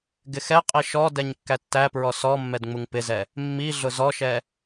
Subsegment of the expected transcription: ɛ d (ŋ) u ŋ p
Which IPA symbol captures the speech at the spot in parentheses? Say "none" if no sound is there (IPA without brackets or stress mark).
ŋ͡m